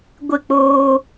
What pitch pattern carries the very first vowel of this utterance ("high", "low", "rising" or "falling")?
falling